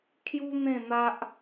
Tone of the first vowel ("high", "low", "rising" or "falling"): high